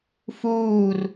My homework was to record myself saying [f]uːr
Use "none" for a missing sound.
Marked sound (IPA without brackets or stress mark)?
f